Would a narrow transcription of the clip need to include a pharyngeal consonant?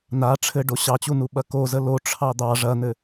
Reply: no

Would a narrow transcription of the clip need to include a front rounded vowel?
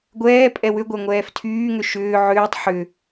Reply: yes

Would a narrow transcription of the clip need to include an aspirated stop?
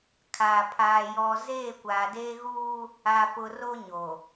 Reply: yes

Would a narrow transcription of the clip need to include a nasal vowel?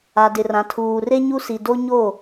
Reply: yes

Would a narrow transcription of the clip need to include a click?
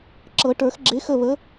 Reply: yes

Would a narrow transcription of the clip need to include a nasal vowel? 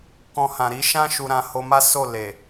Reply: yes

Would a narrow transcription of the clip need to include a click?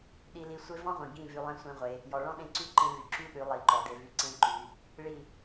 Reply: yes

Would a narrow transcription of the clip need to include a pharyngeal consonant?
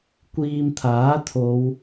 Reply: no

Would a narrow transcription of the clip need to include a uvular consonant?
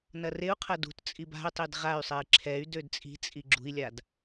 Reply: yes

